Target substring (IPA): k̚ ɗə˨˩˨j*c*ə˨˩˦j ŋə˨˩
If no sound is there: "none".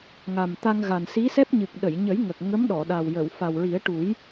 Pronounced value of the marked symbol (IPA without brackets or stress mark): ɲ